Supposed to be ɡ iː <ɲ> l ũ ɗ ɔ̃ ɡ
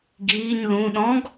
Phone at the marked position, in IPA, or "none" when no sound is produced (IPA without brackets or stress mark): ɲ